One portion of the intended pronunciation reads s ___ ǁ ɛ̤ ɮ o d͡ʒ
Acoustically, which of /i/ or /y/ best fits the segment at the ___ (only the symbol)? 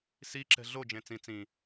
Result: i